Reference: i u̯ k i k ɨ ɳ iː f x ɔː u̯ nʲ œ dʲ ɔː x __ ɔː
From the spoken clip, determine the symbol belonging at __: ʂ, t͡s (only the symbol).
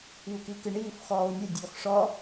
ʂ